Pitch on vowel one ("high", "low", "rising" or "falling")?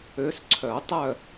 rising